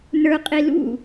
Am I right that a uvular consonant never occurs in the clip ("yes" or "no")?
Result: no